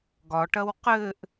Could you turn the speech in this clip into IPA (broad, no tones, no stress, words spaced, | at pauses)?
ɡɒʈɐw qɘʔ